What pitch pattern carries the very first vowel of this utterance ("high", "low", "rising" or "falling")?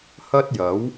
high